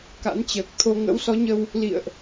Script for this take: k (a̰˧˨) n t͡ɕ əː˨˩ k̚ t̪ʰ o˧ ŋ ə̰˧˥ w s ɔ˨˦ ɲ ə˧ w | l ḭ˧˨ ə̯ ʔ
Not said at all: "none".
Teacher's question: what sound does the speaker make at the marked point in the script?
a̰˧˥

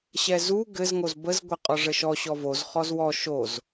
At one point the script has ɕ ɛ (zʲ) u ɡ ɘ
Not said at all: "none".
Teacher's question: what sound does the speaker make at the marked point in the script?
z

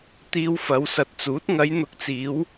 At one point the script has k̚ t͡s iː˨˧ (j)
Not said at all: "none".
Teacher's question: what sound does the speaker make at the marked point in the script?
w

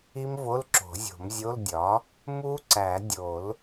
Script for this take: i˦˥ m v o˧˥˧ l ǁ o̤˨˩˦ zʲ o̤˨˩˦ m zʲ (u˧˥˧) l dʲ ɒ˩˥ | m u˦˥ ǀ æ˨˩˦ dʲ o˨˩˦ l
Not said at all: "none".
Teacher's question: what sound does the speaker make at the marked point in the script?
o˧˥˧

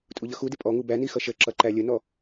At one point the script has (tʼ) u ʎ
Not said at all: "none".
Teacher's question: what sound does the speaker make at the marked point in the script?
tʼ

